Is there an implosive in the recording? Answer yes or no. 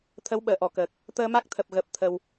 yes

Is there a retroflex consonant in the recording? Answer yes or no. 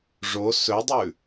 yes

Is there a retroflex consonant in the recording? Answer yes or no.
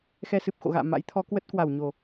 no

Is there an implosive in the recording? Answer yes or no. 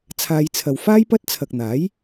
no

